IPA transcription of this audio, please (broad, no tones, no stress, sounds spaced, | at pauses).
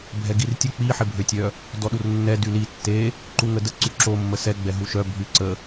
bʱ ɛ ɡ i r tʲ ə k͡p i ħ e bʱ ø tʲ œ | d ɔ ɗ u r nː ɛ d y l i tː e | ǃ u ŋ ə d ə ǀ y ǁ o mː ə s ɛ ɡ͡b ɛ ɦ u ʃ œ bʱ y ǀ ə